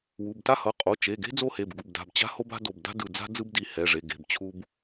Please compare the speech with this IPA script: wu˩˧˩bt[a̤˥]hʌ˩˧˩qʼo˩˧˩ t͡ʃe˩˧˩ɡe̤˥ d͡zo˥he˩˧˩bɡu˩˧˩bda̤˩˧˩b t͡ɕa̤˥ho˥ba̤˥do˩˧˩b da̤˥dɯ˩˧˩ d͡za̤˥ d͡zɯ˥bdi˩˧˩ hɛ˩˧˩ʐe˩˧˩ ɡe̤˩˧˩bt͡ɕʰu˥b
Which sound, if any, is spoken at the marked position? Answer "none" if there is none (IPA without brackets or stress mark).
a˥